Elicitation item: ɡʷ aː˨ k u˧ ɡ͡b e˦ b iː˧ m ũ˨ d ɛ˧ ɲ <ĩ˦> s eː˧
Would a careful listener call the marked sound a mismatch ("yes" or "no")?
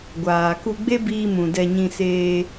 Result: yes